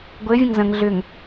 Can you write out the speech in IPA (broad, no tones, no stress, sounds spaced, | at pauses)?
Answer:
ɡʷ ɘ vʲ ə̃ ŋ z ə̃ ŋ ɮ ʏ ŋ